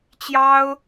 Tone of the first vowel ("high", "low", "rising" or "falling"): high